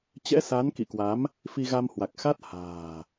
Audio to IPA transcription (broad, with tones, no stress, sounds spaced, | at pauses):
t͡ɕ ɛ̰˧˥ s a˨˦ n k ḭ˧˨ k w a˨˦ m | f i˧ ɣ a˧ m h w a˨˩ k̚ x a˦˥ t̚ h a̤ː˨˩